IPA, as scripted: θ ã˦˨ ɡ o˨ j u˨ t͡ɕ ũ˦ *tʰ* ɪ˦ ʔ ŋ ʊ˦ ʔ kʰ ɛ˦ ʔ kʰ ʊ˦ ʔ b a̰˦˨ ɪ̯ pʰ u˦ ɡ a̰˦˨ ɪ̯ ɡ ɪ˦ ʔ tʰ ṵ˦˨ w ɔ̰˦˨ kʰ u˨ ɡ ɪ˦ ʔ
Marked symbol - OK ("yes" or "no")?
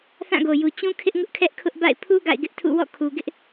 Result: no